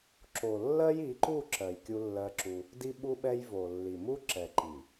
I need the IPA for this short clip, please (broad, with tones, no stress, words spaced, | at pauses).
ǁo˨lːɜ˦j i˨˦ǃu˦˨ǁɜ˨j kʲu˦lːɜ˦ǁu˦ | di˦ɓu˦ɓɛ˦j vo˨ lːi˨mu˦ ǁɛ˨ǃi˨